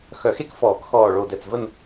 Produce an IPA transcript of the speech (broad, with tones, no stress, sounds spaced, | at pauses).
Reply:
x œ˨˩˦ x e˦˨ k f ɔː˨˩˦ k x ɔː˨˩ ɭ o˨˩ d ɛ˨˩ t͡s v ə˦˨ n